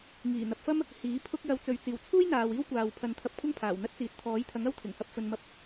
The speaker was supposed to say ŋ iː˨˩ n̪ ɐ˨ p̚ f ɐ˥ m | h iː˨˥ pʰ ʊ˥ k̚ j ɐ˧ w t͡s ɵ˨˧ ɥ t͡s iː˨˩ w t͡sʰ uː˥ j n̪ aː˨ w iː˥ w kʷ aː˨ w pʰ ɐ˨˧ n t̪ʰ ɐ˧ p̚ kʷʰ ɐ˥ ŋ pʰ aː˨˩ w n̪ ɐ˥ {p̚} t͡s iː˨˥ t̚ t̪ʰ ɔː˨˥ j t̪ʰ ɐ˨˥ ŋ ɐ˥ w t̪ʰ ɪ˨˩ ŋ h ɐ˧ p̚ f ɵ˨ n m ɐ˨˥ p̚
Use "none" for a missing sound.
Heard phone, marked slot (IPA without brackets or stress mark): t̚